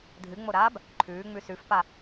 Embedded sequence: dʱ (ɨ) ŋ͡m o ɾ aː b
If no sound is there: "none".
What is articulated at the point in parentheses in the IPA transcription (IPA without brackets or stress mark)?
ɨ